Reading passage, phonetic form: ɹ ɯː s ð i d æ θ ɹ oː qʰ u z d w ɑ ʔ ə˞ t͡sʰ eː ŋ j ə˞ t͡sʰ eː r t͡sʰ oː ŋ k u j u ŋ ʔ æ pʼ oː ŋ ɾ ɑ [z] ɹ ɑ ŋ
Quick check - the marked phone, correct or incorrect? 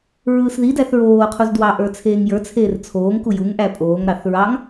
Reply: incorrect